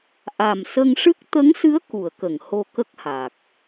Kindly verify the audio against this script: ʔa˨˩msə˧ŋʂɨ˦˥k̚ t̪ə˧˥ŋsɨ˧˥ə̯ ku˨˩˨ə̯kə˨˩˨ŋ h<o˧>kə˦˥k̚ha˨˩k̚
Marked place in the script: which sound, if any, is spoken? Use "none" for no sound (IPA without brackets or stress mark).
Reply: o˧